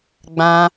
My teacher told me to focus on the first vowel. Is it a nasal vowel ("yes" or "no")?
yes